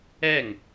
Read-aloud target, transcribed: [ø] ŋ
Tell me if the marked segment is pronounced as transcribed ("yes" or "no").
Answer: no